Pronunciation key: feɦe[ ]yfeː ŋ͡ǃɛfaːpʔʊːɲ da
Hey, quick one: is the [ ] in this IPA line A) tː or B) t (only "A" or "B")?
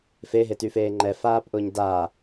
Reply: B